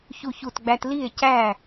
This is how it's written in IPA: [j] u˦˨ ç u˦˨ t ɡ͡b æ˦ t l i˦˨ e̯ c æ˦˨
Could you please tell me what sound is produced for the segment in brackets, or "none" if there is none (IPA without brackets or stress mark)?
ç